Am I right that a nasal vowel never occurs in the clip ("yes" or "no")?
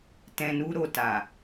no